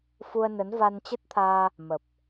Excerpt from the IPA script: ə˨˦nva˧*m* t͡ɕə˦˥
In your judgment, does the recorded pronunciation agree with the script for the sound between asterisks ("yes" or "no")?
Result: no